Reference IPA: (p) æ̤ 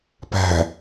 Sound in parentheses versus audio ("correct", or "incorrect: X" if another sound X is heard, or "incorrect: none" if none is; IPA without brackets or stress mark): correct